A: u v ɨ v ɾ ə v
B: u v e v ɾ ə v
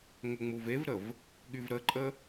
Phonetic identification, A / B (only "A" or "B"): B